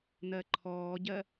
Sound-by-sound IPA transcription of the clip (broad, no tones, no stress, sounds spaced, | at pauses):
n̪ ɜ ǃʰ ɔː ɟ ɜ